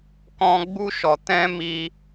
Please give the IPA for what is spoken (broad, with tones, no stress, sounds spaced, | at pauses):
k ɔ̃˦ ɡ͡b u˦ ʃ ɔ˧ t ɛ̃˦ m i˦